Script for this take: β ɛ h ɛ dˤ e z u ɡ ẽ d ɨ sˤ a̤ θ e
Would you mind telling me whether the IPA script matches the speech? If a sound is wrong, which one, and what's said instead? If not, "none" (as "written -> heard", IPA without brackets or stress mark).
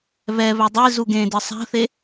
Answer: h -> β